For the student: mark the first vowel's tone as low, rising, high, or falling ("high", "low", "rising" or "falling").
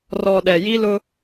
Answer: low